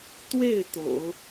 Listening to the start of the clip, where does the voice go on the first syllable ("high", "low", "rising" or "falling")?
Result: falling